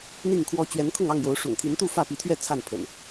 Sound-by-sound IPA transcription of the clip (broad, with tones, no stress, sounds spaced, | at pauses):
n̪ i˥˨ ŋ kʰ w ɔ˦ t͡ɕ ɥ ɛ˨˦ n kʰ ʊ˥˨ ŋ ɑ˥˨ ŋ j o˨˦ ʊ̯ ʂ ʊ̰˨˩ ŋ t̪ʰ i˨˦ n t̪ u˥˨ f ä˥˨ p i˨˦ t̪ʰ ɥ ɛ˥˨ t͡sʰ a˥˨ n pʰ ə̰˨˩ n